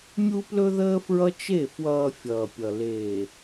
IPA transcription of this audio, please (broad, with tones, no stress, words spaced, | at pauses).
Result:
mʲu˦plɵ˦ðəː˦fɹʌ˦ t͡ʃe˦˨ fwʌː˨ fʲʌː˨pʲʌ˨ leː˨